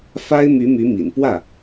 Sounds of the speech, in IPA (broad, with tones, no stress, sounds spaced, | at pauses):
f a˥ ɪ̯ m y˧˥ m y˧˥ m ḭ˨˩ n p w ä˥˩